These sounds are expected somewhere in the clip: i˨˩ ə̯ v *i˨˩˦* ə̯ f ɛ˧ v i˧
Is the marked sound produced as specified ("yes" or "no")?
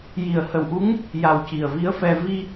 no